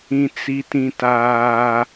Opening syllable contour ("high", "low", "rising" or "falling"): high